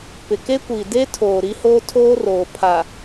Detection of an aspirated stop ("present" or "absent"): present